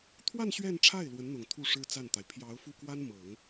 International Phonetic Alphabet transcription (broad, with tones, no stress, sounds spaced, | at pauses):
t̪ʰ w a˥˧ n ɕ ɥ ɛ˥˧ n ʈ͡ʂʰ a˥˩ ɪ̯ l w ə˧˥ n n̪ ʊ˨˩ ŋ t̪ʰ u˥˩ ʂ ɻ̩˥ t͡s a˥˩ n t̪ a˩ ɪ̯ pʰ j ɑ˧˥ ʊ̯ f u˥˩ k w a˥ n m ɤ˨˩˦ ŋ